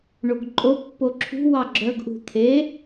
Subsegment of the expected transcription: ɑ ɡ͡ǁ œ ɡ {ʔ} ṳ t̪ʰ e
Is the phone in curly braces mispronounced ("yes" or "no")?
no